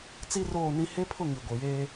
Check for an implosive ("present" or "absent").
absent